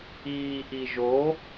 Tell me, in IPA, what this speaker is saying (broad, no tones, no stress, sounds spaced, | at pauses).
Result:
iː ʔ i ʒ o